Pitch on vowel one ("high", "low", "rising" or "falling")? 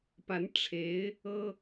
rising